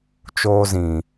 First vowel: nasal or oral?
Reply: oral